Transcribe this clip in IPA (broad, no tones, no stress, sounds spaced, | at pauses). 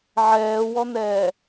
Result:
ʕ ɛː w ɔ n̪ ɛː